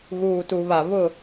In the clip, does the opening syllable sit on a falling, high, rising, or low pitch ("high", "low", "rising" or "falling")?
low